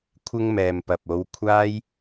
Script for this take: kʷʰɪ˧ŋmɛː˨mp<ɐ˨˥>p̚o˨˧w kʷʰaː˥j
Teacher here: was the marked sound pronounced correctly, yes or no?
no